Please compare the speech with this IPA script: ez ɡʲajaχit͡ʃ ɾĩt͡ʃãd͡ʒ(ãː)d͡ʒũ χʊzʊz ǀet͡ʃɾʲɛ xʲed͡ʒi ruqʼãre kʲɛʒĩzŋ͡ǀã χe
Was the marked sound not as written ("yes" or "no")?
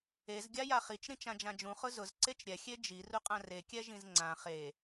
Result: yes